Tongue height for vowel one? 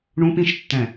high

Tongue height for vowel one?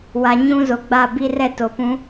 low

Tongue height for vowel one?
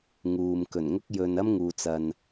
high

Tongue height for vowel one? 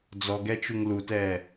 mid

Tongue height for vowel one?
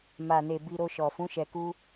low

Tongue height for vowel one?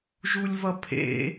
high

